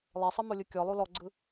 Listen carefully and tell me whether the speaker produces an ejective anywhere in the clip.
no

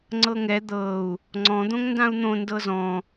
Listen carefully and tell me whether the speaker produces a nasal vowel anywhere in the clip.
yes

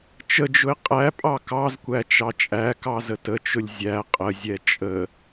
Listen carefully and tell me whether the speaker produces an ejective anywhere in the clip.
yes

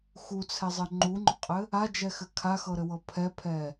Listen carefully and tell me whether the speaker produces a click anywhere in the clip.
yes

